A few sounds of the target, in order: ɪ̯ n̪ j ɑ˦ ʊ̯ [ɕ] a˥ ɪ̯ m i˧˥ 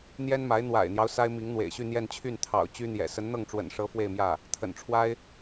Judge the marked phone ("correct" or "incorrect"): incorrect